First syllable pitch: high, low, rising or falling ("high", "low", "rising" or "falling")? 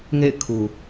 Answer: falling